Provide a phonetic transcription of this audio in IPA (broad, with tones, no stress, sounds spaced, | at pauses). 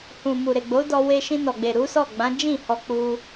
h ũ˨ m u˨ ɾ e˨ ɡ͡b o˨˦ d ɔ˧ w e˧ ʃ ĩ˧ n ɔ˨ ɡ͡b e˨ ɾ u˨˦ s ɔ˦˨ ɡ͡b ã˨˦ d͡ʒ ĩ˦˨ h ɔ˧ k͡p u˧